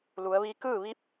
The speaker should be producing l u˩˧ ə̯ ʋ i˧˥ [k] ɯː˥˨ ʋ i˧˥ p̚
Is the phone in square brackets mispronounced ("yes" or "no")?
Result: no